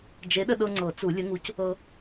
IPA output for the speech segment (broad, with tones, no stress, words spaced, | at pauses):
d͡ʒe˨˥ɗə˧ɗɤ˧ ŋ͡ǀɤ˨˩˦t͡su˨˩˦lʲə˨˥ŋu˨˥c | ɤ˧